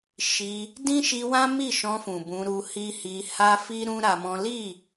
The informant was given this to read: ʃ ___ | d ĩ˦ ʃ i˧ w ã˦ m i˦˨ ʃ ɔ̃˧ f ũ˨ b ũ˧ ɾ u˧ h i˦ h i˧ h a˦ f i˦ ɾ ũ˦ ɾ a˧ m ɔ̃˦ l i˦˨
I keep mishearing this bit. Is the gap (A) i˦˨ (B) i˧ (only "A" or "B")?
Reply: B